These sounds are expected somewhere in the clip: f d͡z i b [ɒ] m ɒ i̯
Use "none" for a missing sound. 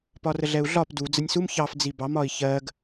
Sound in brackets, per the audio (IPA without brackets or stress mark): ɑ